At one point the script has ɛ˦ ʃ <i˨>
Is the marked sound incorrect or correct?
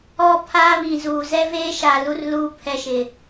incorrect